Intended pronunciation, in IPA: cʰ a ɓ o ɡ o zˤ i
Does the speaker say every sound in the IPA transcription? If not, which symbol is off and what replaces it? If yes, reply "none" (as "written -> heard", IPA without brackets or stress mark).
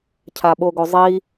none